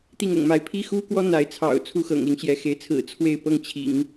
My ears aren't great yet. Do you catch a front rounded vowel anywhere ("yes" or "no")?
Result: no